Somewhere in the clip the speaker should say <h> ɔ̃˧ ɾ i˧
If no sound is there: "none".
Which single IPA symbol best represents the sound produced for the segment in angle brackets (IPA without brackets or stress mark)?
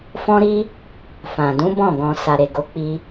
f